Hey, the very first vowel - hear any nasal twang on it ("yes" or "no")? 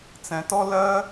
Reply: yes